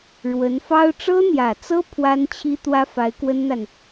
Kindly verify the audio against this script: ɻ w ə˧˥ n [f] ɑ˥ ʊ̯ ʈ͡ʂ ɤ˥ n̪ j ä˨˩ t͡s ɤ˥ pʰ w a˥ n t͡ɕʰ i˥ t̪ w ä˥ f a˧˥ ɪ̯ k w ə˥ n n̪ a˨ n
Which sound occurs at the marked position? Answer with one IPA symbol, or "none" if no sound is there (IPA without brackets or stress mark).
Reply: f